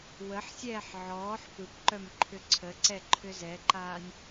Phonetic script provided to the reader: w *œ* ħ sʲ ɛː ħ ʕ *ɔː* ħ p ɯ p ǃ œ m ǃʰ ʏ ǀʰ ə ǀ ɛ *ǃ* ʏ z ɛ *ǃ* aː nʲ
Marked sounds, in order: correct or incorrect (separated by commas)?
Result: incorrect, correct, incorrect, correct